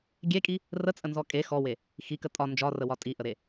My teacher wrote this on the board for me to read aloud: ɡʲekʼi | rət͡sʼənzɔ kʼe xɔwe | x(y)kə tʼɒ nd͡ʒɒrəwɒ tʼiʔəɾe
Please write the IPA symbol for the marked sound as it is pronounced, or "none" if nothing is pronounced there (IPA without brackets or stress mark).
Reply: i